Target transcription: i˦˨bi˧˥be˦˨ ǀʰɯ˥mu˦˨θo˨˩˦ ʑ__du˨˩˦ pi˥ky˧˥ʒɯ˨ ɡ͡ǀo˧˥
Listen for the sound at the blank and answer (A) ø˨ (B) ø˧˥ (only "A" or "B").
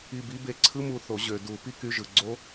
A